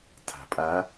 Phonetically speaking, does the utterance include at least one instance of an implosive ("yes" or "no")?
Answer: no